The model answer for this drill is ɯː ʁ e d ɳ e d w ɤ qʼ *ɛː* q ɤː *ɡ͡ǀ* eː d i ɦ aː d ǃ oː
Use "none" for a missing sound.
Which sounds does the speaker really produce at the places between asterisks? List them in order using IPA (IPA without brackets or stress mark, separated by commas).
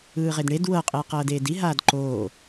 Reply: eː, d